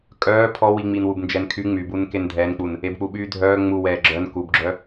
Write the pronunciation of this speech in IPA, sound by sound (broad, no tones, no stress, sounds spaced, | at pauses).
kʼ œː pʰ ɔ w i ŋ͡m i n w u b n d͡ʒ ɛ n kʰ y ŋ͡m y b u n k e n dʱ ɛː n k͡p u n | e b k͡p u ɓ yː dʱ œː ŋ͡m u w ɛː ɡ͡ǁ œ n k u b ɡ͡ǁ œ